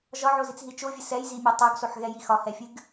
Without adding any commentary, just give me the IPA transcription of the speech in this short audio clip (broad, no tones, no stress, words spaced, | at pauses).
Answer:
ʒɒʕozit͡sɦi t͡ʃovʲɨ sɛjzimʲo tˤoɡsoħɣɛji xɒhɛfʲɨɡ